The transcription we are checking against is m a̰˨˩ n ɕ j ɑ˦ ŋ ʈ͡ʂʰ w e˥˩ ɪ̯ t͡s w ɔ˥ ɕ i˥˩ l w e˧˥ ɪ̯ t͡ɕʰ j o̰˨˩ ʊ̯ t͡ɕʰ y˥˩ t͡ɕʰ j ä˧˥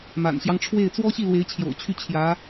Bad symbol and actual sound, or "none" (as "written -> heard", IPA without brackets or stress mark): none